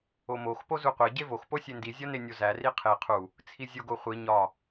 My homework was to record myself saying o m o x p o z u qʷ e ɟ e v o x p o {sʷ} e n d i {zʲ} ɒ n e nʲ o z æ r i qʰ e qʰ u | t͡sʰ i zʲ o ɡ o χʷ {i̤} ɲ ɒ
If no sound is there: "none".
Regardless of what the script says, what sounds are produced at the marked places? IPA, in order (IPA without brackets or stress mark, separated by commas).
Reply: sʲ, zʲ, i